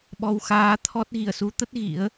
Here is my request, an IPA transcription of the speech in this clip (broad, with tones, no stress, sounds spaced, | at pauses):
ɓ ɔ˧ w x aː˨˦ t̪ʰ ɔ˦˥ t̚ ɣ i˧˩ ə̯ s u˨˦ t̪ ə˦˥ t̚ ɣ ḭ˧˥ ə̯